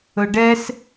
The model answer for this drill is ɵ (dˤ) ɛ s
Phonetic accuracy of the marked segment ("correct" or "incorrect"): incorrect